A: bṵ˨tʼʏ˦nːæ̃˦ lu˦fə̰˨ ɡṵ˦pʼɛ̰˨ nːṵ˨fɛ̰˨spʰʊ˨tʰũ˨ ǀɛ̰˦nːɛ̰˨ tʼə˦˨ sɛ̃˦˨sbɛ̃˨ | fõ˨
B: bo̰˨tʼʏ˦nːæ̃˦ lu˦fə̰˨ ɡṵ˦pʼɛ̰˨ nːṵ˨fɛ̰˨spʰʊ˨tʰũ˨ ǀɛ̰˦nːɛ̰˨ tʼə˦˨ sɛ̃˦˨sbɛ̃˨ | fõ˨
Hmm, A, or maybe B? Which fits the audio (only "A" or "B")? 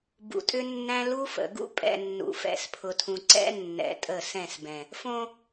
A